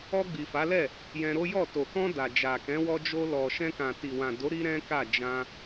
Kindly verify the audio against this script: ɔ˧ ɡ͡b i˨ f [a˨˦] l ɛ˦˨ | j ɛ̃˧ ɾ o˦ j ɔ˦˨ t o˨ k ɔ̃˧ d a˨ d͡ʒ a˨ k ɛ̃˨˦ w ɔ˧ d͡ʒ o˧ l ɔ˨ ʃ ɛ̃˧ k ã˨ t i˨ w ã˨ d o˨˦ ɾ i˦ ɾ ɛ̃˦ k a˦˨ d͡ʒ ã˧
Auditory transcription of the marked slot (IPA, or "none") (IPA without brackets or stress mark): a˨˦